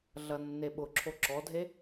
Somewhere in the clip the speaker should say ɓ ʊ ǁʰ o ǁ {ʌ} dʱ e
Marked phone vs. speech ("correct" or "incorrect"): incorrect